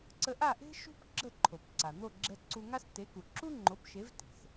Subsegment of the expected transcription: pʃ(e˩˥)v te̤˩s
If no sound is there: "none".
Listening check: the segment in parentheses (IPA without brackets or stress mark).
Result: e˩˥